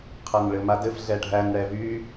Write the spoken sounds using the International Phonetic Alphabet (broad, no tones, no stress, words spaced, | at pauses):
qʰænɭɘmadɘf ɮɛɖʱæn ɽɛvy